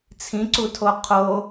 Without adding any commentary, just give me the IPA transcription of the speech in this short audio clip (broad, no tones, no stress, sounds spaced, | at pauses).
t͡sʰ ĩ ǀ u tʰ o qʰ o